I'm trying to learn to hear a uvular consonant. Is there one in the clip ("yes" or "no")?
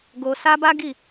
no